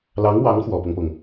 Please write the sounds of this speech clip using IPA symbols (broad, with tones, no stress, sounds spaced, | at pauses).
l ɑ˧˥ ŋ w ɑ˧˥ ŋ x w ɔ˨˩ p ɤ˦ ŋ p ɤ˩ ŋ